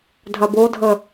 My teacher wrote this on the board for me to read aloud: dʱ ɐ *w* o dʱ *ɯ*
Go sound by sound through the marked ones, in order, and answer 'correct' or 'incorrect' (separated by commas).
incorrect, incorrect